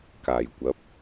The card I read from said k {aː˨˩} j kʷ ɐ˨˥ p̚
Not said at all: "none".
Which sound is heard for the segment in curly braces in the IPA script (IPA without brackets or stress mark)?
aː˨˩